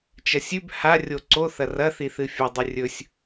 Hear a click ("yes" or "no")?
yes